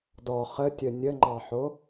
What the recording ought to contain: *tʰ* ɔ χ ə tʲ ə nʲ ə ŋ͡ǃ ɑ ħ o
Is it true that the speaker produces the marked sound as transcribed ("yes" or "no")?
no